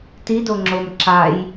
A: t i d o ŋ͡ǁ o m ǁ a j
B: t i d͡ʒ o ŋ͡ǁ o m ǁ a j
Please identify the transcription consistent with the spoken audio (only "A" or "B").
A